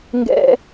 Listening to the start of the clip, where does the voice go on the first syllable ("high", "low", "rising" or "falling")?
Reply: high